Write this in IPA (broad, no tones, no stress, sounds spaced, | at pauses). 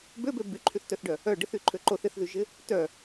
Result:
b ø b ø b y ǃʰ y θ t œ θ ɖ œ | œ ɖ ɪ θ y ǃʰ ø ǃ o θ ɪ θ ð y ʒ ɪ | t œ